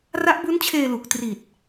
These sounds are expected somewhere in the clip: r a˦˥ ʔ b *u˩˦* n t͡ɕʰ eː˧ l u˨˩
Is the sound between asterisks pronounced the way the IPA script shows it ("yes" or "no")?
no